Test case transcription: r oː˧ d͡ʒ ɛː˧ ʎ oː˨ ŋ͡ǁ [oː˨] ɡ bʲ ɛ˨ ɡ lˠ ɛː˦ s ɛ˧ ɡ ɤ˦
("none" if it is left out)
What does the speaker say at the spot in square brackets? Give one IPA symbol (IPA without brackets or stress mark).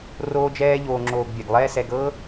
oː˨